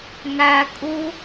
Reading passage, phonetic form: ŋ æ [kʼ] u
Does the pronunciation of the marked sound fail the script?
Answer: no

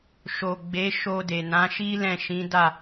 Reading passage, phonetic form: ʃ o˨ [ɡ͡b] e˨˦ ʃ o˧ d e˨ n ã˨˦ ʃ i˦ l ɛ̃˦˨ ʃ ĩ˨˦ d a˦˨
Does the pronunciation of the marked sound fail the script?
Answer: no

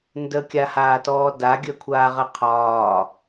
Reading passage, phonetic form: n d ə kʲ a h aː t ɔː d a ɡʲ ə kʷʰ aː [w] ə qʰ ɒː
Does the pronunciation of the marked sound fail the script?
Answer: yes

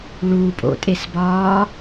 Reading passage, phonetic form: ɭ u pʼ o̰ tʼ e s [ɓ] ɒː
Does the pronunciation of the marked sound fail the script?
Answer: yes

